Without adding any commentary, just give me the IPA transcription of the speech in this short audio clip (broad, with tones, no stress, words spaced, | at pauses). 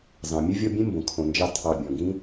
zɑ̃˩mʲɵ˥vʲɔ˦bʲẽ˥ mbõ˩kʰõ˨nd͡ʒɑ˦ tʰɑ˨bʲɔ̃˩ɡĩ˥